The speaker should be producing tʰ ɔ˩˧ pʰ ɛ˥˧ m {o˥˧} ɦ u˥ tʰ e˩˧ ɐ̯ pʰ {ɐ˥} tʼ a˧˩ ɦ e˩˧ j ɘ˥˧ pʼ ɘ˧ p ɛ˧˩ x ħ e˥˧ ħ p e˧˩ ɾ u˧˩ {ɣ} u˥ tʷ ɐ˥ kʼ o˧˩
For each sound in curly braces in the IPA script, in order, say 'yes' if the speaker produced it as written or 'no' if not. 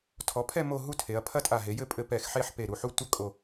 yes, yes, no

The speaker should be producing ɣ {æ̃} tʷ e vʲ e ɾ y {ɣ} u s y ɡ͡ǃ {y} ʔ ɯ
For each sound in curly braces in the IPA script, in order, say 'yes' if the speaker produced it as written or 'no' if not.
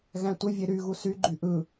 yes, yes, yes

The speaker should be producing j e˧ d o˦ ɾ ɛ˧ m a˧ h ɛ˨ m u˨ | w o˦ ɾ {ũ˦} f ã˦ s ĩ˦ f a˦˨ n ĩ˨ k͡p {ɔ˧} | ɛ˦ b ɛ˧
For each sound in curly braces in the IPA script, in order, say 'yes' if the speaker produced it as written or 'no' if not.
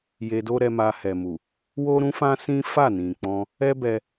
yes, no

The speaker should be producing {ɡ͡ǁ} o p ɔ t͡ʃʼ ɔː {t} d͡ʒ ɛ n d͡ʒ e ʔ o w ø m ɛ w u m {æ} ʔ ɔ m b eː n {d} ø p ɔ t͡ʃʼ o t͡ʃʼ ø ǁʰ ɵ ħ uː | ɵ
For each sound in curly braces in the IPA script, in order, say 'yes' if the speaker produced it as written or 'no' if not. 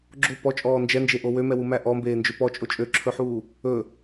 yes, no, yes, no

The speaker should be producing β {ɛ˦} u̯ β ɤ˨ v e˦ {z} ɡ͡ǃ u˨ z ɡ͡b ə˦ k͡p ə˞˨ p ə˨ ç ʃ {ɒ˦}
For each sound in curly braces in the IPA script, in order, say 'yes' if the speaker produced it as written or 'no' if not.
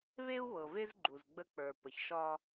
no, yes, yes

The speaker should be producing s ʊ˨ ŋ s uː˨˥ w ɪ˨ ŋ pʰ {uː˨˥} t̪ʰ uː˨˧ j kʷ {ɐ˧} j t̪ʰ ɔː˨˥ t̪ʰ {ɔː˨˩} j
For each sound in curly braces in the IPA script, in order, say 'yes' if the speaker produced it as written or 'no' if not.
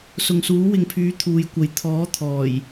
no, no, yes

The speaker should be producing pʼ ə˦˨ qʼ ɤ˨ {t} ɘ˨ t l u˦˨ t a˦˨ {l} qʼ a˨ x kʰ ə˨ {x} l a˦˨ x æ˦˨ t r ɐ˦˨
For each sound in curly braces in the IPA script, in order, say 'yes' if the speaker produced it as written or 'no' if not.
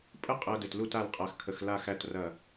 no, yes, yes

